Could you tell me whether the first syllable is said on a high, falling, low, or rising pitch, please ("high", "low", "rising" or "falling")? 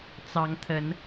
rising